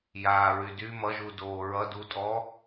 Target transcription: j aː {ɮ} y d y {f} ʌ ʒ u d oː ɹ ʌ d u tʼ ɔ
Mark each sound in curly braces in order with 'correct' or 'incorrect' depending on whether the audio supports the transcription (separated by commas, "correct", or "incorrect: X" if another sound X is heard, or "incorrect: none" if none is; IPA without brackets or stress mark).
incorrect: ɹ, incorrect: m